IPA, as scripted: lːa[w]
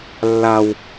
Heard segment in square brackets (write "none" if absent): w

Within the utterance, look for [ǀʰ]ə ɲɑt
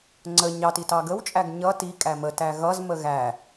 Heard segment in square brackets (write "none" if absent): ŋ͡ǀ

